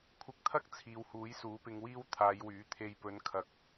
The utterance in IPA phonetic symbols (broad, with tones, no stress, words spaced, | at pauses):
kʷʰɪ˨˥k̚t̪ʰɐ˥k̚ t͡sʰiː˨whuː˨˥jsuː˨˥ pɪ˧ŋwiː˥w t̪ʰaː˨˧jwyː˨˥t̪ʰe˧j pɵ˨˧nkʰɐ˨k̚